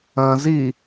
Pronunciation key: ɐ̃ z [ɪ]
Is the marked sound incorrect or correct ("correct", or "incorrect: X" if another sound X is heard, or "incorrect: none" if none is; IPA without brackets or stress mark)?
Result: incorrect: i